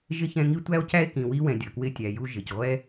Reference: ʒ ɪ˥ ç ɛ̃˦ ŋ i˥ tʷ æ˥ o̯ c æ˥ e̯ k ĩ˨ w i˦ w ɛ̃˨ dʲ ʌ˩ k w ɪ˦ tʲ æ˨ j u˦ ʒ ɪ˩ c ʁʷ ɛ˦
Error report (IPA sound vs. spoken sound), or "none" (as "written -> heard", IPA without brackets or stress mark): none